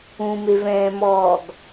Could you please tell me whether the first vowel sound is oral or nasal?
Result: nasal